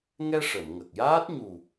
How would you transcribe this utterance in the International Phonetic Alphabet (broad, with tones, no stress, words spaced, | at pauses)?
ŋɛ˧ ʂə˨˩˨mŋə˨˩k̚jaː˦˥t̚ ɲu˨˩